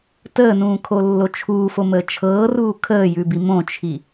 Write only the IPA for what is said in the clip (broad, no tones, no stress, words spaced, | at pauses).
təːnũːkʰolːo t͡ʃʰuːfoməː t͡ʃʰɤːruː kʰəːjʉbi mõt͡ʃʰi